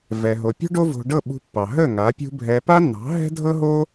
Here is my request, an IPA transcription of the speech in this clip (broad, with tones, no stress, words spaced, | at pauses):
vɛ˧ɦo˧ pʲo̤˦ɖo˦vo̤˧ɖɤ˦˨ ɓṳ˧pːɑ˨ ɦə˦˨ ŋa˨˦pʲṳ˦ bʱɛ˧ pa˦nːɑ̤˨˦ ɦɛ̤˦dʱɤ˦ɦo˦